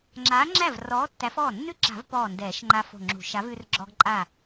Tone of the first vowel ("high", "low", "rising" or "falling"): rising